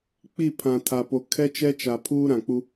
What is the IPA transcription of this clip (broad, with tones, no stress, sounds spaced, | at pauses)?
k͡p i˦˨ pʰ ã˨ tʰ a˨ p o˨ kʰ ɛ˦ t͡ʃ ɛ˦ t͡ʃ a˨ pʰ uː˦ ɾ ã˨ k͡p u˦